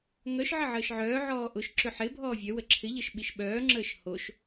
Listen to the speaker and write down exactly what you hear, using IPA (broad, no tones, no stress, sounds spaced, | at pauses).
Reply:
ŋ œ ʃ ʕ ə ʕ əː ʃ ʕ œː ʕ ɔː ʔ ʊ ʃ ǁ ʏ ħ ɪ bʱ ɔː vʲ œ w ə ǁʰ ɪ ʎ ə ʃ ɓ i ʃ ɓ œː ŋ͡ǁ əː ʃ h o ʃ